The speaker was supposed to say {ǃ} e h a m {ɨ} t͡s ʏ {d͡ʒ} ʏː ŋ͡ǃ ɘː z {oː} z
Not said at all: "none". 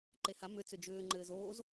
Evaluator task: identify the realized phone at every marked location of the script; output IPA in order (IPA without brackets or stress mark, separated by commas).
ǃ, ʏ, d͡ʒ, oː